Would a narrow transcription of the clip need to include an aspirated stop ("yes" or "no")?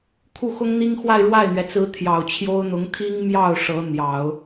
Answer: yes